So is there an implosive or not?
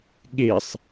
yes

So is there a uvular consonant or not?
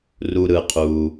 yes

